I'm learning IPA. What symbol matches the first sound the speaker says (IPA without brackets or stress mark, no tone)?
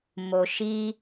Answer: m